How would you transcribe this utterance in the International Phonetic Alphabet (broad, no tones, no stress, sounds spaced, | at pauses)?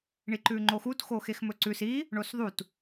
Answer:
ɳ i ǃ ʉ ŋ͡ǃ o x u t x o x e x m ɵ ǀ ʉ s i | ɳ o s ðˤ u t